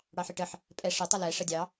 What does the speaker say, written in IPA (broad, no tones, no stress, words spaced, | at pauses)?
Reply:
ɽɑħɪʈəħ | pʼɛ ʂɪ tˤʌlɛ ʂədʲɑ